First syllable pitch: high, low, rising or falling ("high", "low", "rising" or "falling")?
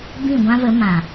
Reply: falling